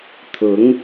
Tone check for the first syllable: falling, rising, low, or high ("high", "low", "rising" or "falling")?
rising